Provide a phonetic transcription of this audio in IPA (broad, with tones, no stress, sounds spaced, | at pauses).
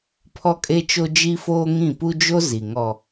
pʰ ɔ˦ kʼ e˦ t͡ʃ o˦ d͡ʒ i˦ f oː˦ ŋ ĩ˦˨ p u˦ d͡ʒ o˦ z i˨ ŋ ɔ˨